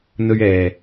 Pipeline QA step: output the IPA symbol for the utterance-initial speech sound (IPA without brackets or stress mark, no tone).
n̪